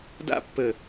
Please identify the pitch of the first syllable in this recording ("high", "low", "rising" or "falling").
falling